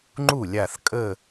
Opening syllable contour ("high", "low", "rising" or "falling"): falling